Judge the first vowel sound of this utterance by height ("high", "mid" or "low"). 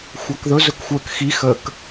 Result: low